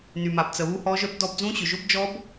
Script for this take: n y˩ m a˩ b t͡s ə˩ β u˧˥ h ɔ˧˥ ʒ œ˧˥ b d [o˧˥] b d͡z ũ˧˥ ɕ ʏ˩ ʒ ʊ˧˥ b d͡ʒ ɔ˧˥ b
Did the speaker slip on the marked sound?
yes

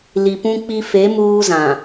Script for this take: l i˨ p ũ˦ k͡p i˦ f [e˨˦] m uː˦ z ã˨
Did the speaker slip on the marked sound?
no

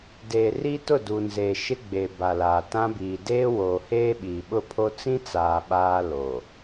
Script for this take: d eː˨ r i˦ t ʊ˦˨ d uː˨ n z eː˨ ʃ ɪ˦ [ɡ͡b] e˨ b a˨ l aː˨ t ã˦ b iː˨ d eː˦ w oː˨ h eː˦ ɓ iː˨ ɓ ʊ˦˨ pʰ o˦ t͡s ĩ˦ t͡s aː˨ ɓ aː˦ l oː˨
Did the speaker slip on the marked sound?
no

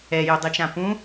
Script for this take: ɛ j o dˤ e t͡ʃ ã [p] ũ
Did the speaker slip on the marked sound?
no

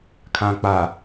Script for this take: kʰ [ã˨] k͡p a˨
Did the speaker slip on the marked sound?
no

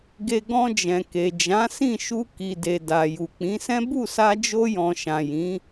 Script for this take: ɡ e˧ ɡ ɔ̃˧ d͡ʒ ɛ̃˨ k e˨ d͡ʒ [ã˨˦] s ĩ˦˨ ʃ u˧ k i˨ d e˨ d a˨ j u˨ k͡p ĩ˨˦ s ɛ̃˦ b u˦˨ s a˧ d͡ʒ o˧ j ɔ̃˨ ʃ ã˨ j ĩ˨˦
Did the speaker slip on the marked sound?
no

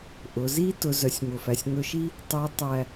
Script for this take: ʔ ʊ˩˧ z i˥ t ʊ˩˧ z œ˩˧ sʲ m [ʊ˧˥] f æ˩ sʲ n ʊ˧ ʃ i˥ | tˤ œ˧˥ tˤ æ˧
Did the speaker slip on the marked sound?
yes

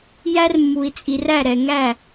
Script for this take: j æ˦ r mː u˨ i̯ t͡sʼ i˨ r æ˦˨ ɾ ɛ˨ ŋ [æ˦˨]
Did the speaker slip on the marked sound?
no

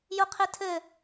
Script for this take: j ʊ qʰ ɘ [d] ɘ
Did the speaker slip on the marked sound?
yes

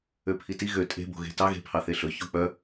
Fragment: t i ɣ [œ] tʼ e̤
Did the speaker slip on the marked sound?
yes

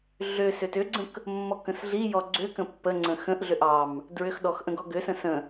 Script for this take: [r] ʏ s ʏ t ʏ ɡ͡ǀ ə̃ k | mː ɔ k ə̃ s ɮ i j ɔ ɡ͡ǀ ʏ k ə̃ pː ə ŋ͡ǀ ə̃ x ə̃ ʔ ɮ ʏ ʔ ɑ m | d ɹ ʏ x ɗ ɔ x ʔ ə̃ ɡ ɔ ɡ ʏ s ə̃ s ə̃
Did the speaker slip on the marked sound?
yes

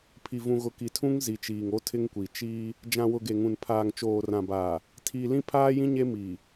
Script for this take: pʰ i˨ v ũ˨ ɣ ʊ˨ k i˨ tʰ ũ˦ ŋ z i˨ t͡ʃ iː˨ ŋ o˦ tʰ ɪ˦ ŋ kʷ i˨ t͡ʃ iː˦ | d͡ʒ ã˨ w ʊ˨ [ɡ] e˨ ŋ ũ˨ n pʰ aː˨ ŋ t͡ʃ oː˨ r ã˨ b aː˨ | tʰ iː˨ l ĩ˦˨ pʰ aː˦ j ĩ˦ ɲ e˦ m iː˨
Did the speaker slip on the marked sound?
no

